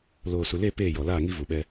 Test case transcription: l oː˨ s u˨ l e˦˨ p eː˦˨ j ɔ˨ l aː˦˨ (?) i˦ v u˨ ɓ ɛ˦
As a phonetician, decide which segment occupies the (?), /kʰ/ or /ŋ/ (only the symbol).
ŋ